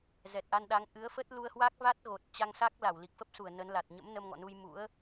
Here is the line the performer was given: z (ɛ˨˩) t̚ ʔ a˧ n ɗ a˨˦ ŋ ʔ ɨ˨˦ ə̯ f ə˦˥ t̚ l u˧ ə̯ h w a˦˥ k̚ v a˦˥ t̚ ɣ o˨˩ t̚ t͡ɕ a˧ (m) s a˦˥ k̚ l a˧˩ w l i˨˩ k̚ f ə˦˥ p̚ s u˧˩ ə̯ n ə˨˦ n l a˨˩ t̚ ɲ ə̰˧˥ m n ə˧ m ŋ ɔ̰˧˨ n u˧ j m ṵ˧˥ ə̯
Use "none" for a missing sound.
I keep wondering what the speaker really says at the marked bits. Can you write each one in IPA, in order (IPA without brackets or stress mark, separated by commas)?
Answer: ɛ˨˩, ŋ